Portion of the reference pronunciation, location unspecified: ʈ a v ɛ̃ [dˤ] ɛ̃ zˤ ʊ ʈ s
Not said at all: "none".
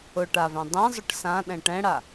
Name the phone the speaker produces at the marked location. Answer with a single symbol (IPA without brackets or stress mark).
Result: dˤ